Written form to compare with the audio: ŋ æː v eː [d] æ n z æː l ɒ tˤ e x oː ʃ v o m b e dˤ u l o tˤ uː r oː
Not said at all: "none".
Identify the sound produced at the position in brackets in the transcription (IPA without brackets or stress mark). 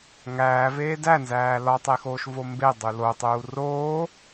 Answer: d